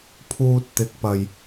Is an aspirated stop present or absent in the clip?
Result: present